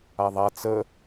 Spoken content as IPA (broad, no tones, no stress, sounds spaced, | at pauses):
a ðˤ a t͡s ə